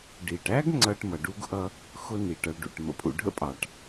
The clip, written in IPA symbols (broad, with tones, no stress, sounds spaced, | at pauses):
ɖ i˩ ʈ æ˥ ɡ ŋ͡ǀ ʌ˦ ʈ m ʌ˩ ɖ u˥ ɡ ʔ ʌ˦ | x ʊ˦ n i˩ ʈ ʌ˨ ɭ ɖ ṵ˩ ʈ m ə̰˨ pʰ ṵ˨ ɖʱ ə̰˥ pʼ ɑ˩ ʈ